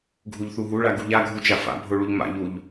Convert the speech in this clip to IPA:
ɡʱuʎθuɦuɭa ɡuʎaɡʱu t͡ʃafa̰bʱo ɭuʎma̰ʎuʎ

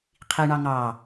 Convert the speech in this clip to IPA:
qʰiɳɑ ŋɑ

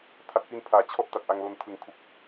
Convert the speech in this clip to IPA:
tʰa˨˩t̚fi˧npʰaː˩˦ t͡ɕʰɔ˦˥ʔ ta˨˩t̚ʔa˧ŋlo˧n tʰɯ˨˩ŋkʰu˨˩k̚

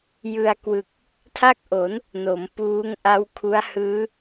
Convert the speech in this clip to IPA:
jɯ˧a̯ kwɯ˨˩k̚ | tʰa˥˩k̚ʔo˩˦n | no˩˦m puː˦˥ŋʔa˦˥w kʰu˦˥a̯hɯː˦˥

